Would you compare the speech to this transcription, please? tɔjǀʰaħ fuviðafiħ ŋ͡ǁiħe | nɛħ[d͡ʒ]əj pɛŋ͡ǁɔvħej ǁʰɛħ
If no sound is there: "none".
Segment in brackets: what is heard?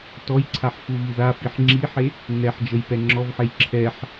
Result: d͡ʒ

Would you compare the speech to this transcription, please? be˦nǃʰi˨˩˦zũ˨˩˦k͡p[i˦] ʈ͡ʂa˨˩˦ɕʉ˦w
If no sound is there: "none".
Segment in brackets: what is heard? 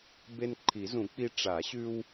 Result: i˦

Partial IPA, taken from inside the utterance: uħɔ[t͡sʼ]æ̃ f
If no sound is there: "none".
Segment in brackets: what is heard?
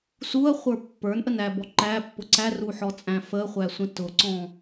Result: t͡sʼ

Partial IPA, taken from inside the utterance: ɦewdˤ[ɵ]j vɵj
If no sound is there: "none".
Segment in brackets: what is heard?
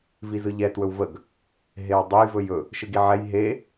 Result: ɵ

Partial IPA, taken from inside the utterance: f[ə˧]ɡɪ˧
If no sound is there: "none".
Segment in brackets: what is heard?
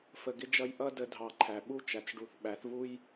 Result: ə˨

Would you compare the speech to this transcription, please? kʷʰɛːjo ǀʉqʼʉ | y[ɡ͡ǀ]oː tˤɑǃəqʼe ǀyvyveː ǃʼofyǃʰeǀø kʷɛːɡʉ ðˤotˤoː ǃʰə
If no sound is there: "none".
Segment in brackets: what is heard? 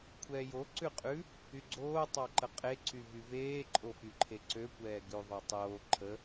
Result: ɡ͡ǀ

